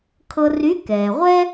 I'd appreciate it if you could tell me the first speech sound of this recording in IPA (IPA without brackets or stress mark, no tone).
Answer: kʰ